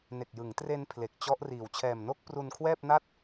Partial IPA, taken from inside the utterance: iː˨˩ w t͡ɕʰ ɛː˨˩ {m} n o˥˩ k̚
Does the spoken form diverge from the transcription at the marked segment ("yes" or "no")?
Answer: no